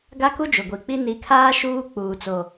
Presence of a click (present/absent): absent